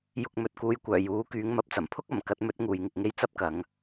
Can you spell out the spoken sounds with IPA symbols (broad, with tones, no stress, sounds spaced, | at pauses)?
j ʊ˧ k̚ m ɵ˨ t̚ k uː˧ j kʷ œː˨˩ j uː˨˥ k yː˨˥ ŋ m ɐ˧ p̚ t͡s ɐ˨˩ m pʰ ʊ˥ k̚ ɐ˨˩ m k ɐ˧ t̚ m ɵ˨˥ t̚ ŋ uː˨ j ŋ ɪ˨ k̚ ŋ e˥ j t͡s ɐ˥ p̚ k ɐ˨˧ ŋ